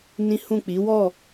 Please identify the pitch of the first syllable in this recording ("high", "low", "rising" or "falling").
high